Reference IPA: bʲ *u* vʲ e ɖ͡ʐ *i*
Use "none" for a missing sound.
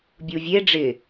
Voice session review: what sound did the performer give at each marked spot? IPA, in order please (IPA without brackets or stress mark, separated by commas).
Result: u, ɪ